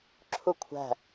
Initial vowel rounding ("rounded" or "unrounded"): rounded